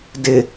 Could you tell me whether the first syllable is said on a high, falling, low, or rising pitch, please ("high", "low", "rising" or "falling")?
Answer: low